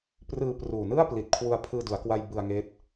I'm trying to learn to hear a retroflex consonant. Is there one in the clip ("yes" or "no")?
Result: no